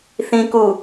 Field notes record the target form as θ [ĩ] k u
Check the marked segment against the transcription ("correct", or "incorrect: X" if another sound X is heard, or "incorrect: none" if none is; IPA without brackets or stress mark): correct